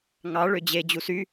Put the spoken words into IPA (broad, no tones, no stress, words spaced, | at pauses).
ŋɑ ɭød͡ʑe d͡ʑusy